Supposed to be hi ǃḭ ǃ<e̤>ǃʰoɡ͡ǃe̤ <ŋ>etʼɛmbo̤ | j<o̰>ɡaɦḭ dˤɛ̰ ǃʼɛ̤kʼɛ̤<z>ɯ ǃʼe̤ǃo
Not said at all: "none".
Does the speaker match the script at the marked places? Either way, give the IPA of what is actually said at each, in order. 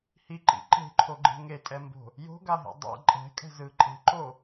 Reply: e̤, ŋ, o̤, z

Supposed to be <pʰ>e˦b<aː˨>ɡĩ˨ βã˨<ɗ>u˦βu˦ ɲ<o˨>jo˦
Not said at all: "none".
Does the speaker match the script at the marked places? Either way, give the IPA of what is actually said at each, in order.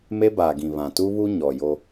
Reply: m, aː˨, t, ɔ˨

